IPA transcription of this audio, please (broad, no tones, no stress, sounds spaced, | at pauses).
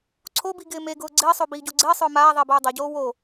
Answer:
ǀʰ o b i ɡ ɪː m e ɡ ʊː ɡ͡ǀ ɪː sˤ o b iː ɟ o ɡ͡ǀ ɪː sˤ ʊː m aː ðˤ ɪː b oː dˤ a ɟ oː w o